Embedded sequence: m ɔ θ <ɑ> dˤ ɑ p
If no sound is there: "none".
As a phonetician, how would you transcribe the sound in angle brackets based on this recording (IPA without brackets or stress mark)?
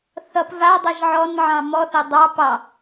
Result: ʌ